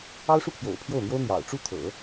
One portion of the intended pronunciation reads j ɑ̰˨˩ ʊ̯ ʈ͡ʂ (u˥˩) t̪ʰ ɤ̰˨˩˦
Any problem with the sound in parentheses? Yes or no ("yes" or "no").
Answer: no